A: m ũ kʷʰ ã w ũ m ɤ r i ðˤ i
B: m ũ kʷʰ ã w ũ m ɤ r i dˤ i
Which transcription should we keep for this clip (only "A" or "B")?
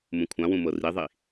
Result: A